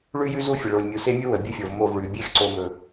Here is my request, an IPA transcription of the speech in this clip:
ɭ ʉ˦ j ʉ˦ z u˦ fʲ ə˨ ɭ o˨ lʲ mʲ u˨ s e˦ mʲ u˦ w ə˨ bʲ ɵ˦ fʲ o˨ v m o˦˨ v ɭ ʉ˨ bʲ e˦ x ǀ o˨ m ɵ˨

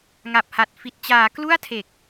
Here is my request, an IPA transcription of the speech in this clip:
ŋ a˨˩ p̚ h a˨˩ t̚ f i˨˩ t̚ t͡ɕ aː˩˦ k l u˥˩ a̯ tʰ e˨˩ k̚

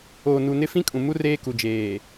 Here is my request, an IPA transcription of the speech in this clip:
oː˨ n u˨ n ɪ˦ f ĩ˦ kʼ ũ˨ m u˦ r eː˦ k u˨ d͡ʒ eː˨

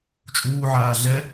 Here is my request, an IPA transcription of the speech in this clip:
t͡ʃʼ uː ʕ aː ɮ ɛ

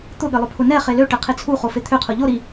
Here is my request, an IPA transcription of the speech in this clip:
t̪ ʊ ɠ ɘ lˠ ʊ pʰ ʊ n ɛ χ e l ø ʈ ɛ qʰ e t͡sʰ u χ o f e t̪ʰ ø qʰ ʊ ʎ o ɾ i

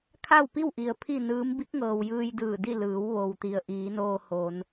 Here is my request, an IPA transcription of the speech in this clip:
kʰ a˥˨ w p i˥˨ w ʔ i˩ ə̯ pʰ i˥˨ n ɯː˧˥ m b i˧˥ k̚ ŋ ɤː˩ w j ɯː˧ j d ɯː˧˩ d i˥˨ l ɯː˩˧ w ʋ o˩ w t̪ i˩ ə̯ ʔ iː˩˧ n oː˧ h o˩˧ n

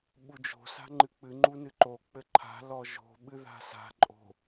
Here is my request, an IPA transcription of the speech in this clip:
ɓ u d͡ʒ o̤ s a̤ ŋ͡ǃ ɨ k͡p ɨ ŋ͡ǃ u n ɨ ǃ o k͡p ɘ ǃʰ a̤ l ɔ ʒ o̤ ɓ ɨ ð a̤ s a̤ ǃʼ o̤

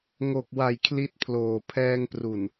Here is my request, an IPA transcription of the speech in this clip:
ŋ o˨˩ k̚ w a˨˩ j kʰ l i˦˥ t̚ pʰ l oː˨˩ pʰ ɛː˧ ŋ p r u˨˩ n

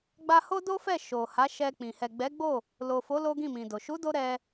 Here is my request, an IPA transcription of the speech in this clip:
ɡ͡b a˧ h o˦ d o˦ f ɛ˦˨ ʃ o˨ h a˨˦ ʃ ɛ˧ k͡p ĩ˨ h ɛ˨ ɡ͡b ɛ˨˦ ɡ͡b o˦˨ | l o˨ f o˨˦ l o˦ ɡ ĩ˦˨ m ĩ˨ d o˨ ʃ u˨˦ d o˧ ɾ ɛ˧

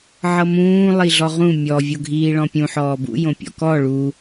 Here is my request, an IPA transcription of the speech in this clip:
ʕ ɤ m ũː lˠ i ɮ ɔ ʁ ũ mʲ ɔ vʲ o ɡʱ iː ɭ ɔ̃ pʲ ũ ħ ɔː b ṵ j õ pʲ ɔ̰ k ɔ ɭ u

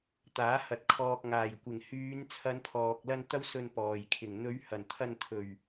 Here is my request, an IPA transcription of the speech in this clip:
t̪ aː˨˥ h ɐ˨ t̚ kʰ ɔː˨ k̚ ŋ aː˨˩ j kʷ ɪ˨˩ ŋ h yː˨˧ n t͡sʰ ɐ˨˧ n pʰ ɔː˨ k̚ l ɐ˧ n t̪ ɐ˥ w s ɵ˧ n p ɔː˨˩ j kʰ ɪ˨˩ ŋ n̪ ɵ˨˧ ɥ h ɐ˨˩ n t̪ʰ ɐ˧ n t̪ʰ ɵ˨˩ ɥ

